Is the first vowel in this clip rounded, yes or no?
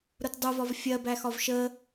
yes